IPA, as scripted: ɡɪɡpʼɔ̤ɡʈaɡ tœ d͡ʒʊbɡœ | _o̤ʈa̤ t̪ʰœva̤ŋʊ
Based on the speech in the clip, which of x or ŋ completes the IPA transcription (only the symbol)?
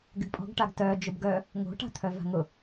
ŋ